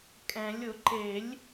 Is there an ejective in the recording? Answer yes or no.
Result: yes